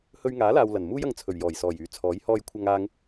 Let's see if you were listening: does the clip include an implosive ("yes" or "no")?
no